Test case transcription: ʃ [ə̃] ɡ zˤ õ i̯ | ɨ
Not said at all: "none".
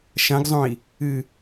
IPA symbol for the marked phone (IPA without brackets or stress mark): ɐ̃